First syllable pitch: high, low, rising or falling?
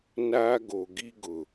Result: high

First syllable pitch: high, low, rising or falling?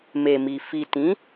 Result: low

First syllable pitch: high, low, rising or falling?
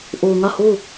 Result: low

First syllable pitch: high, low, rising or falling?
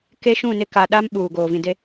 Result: high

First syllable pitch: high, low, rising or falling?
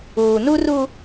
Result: low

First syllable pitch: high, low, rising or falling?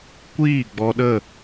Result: falling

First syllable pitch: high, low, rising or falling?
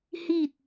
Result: falling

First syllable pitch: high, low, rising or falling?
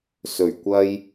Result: low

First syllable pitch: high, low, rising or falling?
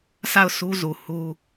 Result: falling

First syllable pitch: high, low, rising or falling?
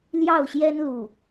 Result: falling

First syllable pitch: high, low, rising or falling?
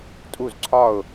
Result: falling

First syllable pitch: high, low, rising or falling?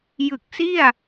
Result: low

